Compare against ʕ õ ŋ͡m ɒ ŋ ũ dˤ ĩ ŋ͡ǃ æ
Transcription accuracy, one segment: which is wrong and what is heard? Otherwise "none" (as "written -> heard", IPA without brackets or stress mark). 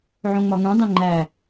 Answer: none